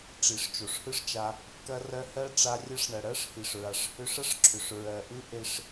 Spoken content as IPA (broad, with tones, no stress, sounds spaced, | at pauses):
ʈ͡ʂ i˨ ʂ t͡ʃ o˨ ʂ h ɯ˦ ʂ t͡ʃ a˧ | k ɐ˧ r ɜ˧ h ɜ˦ ʈ͡ʂ a˧ rʲ ɐ˧ ʂ ɳ ɐ˨ ɽ ɜ˦ ʂ h i˨ ʂ ɹ a˨ ʂ h ʏ˧ ʂ ɐ˦ ʂ ǁʰ ʏ˨ ʂ ɹ ɜ˨ ʔ ɯ˦ ʔ e˧ ʂ